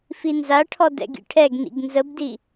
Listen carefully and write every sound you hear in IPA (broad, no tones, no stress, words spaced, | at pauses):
finzaʈʰɔ dɛ̰ɡḭʈʰɛɡnḭɡ nzəbdi